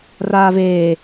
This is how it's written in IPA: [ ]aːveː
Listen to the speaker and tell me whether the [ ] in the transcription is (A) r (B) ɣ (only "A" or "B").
A